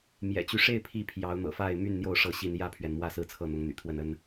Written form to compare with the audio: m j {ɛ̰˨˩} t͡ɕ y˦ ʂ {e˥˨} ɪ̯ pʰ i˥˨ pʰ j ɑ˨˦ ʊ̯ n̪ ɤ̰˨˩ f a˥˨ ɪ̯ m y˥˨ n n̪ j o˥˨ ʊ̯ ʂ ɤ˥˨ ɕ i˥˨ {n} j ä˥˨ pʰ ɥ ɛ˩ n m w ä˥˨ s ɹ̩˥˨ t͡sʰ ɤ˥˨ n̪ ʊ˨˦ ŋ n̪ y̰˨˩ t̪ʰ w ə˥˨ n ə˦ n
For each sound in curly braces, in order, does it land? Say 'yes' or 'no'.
yes, yes, yes

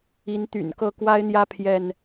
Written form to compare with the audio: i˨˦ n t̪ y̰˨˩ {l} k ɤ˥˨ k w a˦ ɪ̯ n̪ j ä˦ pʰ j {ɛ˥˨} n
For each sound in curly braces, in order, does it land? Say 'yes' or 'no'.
no, yes

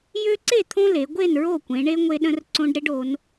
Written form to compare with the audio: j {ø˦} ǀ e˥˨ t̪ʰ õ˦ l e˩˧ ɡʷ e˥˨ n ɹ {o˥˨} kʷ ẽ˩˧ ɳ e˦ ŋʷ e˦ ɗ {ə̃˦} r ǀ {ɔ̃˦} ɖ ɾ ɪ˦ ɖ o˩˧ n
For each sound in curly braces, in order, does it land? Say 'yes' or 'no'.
yes, yes, yes, no

